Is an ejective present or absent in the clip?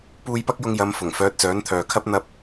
absent